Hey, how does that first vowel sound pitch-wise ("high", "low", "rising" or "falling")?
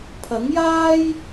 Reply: rising